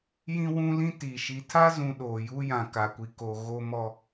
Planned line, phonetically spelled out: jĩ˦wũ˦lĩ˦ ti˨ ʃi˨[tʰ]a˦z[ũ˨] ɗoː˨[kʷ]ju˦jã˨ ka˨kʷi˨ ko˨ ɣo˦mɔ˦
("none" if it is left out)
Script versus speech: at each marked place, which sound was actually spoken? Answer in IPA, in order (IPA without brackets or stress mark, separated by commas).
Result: tʰ, ũ˨, none